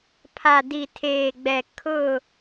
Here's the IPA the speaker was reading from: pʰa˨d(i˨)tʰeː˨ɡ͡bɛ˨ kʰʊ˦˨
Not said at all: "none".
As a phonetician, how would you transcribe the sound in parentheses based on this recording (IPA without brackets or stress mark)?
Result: i˨